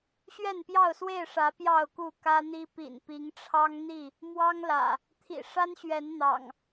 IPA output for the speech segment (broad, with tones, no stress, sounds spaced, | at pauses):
ɕ ɥ ɛ˥˨ n p j ɑ˥˨ ʊ̯ s w e˥˨ ɪ̯ ʂ ä˨˦ p j ɑ˥˨ ʊ̯ k u˥˨ k ä˦ n̪ i˦ p ḭ˨˩ n p i˨˦ ŋ ʈ͡ʂʰ ɑ˦ ŋ n̪ i˥˨ | m w ɑ˦ ŋ l ä̰˨˩ | t̪ʰ ḭ˨˩ ʂ a˦ n ɕ ɥ ɛ˨˦ n n̪ ɑ̰˨˩ ŋ